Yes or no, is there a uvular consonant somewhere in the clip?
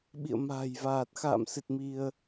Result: no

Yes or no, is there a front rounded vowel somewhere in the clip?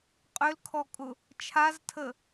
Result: yes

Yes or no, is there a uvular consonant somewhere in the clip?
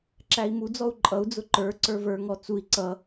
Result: no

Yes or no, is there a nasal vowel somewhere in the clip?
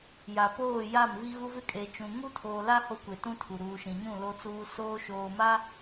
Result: yes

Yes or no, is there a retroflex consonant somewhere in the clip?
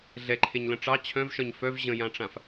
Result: yes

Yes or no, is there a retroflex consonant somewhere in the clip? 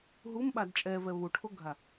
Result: yes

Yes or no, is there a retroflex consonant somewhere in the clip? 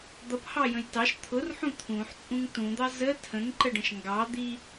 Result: yes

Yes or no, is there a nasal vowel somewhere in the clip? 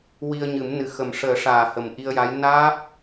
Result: no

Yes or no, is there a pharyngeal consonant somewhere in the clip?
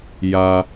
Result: no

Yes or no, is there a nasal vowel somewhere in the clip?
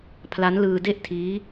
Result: no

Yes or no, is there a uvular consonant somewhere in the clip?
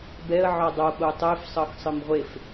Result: yes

